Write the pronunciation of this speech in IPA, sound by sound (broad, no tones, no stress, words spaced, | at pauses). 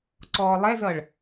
ǀɔːlˠɛzʌɭ